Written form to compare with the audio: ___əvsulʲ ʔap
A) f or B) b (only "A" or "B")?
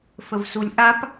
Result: A